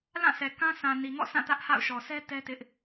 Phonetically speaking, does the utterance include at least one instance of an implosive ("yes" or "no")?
no